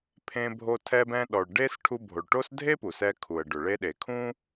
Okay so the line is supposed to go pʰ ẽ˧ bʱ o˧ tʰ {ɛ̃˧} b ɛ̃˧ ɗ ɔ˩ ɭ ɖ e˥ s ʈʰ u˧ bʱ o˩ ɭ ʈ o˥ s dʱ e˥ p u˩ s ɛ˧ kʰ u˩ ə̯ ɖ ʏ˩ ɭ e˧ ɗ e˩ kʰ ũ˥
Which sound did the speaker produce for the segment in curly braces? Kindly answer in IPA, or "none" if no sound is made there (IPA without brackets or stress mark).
ɛ˧